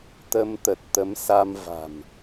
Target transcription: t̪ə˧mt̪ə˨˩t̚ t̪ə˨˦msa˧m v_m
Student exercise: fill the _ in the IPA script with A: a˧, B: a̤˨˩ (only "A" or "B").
B